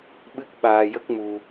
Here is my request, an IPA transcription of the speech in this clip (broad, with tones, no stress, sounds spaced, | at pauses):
ɓ ɨ˦˥ k̚ ɓ aː˧ j ə˦˥ k̚ m u˧